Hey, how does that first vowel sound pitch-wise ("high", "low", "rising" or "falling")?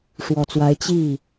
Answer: low